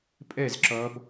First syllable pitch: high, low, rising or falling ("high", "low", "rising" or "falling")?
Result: falling